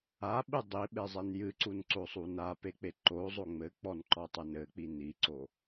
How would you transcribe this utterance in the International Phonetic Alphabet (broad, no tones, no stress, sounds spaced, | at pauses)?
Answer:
a ɓ ɨ dˤ i ɓ e zˤ e n j ɨ ǀ u n ǀ o sˤ u n a p e k͡p e ǃ o zˤ o ŋ͡m ɘ k͡p ɔ n ǃ ɔ tˤ e n ɘ k͡p i n i ǀ o